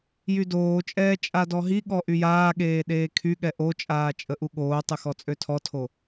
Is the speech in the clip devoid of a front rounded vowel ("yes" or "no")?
no